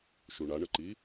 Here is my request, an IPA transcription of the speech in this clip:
ʃ u ɳ a ɳ ə ǃ i

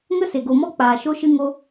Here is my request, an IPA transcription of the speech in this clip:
ŋ ə˦ s e˨ ɡ o˨ m ɔ˦ k͡p aː˨ ʃ o˦ ʃ ɨ˦ ŋ o˦

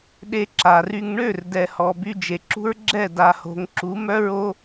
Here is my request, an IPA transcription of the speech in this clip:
ɗ e˧ ǁ a˨ r y˧ ŋ ɳ ø˦˨ r d ɛ˨ h ɔ˨ b y˧ d͡ʒ e˨ ǁ ṳ˦ ɹ ɡ͡ǁ ɛ˦˨ d a˨ h o̤˨ ŋ ǁ u˨˦ m œ˦ ɹ o˦

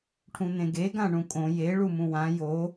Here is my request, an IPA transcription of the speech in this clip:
ʈʰ ũ n̪ ẽ ɡ e ɡ ã ɳ ũ kʼ õ j e ɭ u m ũ w ã j o

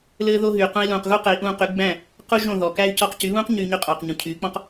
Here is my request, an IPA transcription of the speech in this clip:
l ɘː˧ ð o˧ ɦ yː˩ q ũ˧ i̯ l ũː˩ q ɣ u˥ q ɘ˩˥ i̯ ʔ ũː˧ q y˩˥ ɡ͡b æ̃˥˩ | q u˥ ʒ õ˥˩ ð ɔ˩ k æ˥ y̯ c ɔ˧ q c y˩˥ β ũː˥ q ɲ yː˧ ɲ y˧ qʼ ɔː˩ q ɲ ũ˩ cʰ yː˩˥ k͡p ɔ̃˥ q

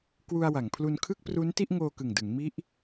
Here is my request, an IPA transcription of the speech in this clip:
k w u˧ a̯ w a˩˦ ŋ pʰ l u˧ n kʰ ɯ˥˩ k̚ p r u˦˥ n t i˥˩ ʔ ŋ oː˧ k ɯ˨˩ ŋ d ɯ˩˦ ŋ m i˦˥ ʔ

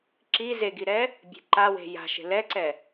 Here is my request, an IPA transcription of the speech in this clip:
ǁ i z e ɡ i ɾ ɛ | bʲ e̤ ǃ a w e̤ j a̤ ʃ e̤ l ɛ ǀ ɛ

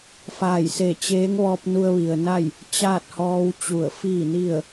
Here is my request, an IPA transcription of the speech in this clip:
f aː˧˩ j s e˧˩ t͡ɕ eː˧˥ ŋ ʋ ɔː˧ p̚ n u˧ ə̯ ʋ i˩ ə̯ n a˥˨ j | t͡ɕ aː˥˨ t̚ h ɔː˧ w t͡ɕ u˧˩ ə̯ f iː˥˨ n i˥˨ ə̯

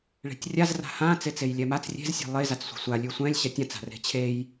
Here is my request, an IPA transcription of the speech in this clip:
ɭ e̤ tʲ rʲ a z r a̤ h ã t͡s e t͡s e j lʲ ɛ m a t͡s rʲ e̤ z sʲ e̤ lˠ e z a t͡s sʷ e̤ sʷ a lʲ ʉ sʷ ɛ̃ lʲ ɕ ɛ tʲ ã t͡s a̤ r e̤ t͡ɕʰ e j

